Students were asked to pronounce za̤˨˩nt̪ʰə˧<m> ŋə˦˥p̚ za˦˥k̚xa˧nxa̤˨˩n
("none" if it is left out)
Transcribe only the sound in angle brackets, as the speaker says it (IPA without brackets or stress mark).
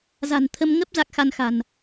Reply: m